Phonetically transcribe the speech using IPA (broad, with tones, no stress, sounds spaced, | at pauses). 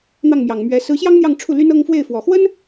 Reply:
n̪ ɑ˥˩ ŋ m j ɑ˨˩ ŋ m ɥ ɛ˧˥ s ɹ̩˧˥ ɕ j ɑ˥ ŋ n̪ j ɑ˥˧ ŋ ʈ͡ʂʰ u˥˩ l y˥ n ɤ˥ ŋ f w e˥˩ ɪ̯ f w ɔ˨˩ x w ə˥ n